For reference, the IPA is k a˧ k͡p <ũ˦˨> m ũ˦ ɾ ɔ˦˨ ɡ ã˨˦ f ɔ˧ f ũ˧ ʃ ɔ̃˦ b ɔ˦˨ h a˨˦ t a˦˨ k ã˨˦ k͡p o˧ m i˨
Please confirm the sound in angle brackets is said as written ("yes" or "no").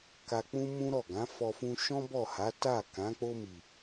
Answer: no